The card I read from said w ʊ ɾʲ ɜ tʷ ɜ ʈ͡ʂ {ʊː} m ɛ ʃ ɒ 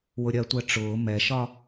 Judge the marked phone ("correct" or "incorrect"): correct